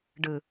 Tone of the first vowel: low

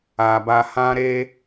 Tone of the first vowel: low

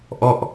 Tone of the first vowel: falling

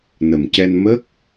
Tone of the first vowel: low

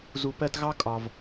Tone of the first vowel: low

